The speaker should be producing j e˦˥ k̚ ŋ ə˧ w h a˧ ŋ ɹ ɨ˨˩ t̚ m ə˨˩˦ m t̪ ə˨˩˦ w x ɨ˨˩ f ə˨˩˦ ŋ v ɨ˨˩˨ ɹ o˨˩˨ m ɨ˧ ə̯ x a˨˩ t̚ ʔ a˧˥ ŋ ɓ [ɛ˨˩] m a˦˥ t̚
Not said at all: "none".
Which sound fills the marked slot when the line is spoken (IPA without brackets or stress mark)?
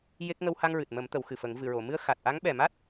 ɛ˨˩